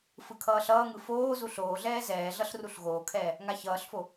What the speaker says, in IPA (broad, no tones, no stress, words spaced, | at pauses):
fɯkʰʌːɬʌːŋɯ foːzu ɬoːɮɛː zɛːɮʌɬ ruɬɣoːkʰɛː | ŋaçʌːɬfo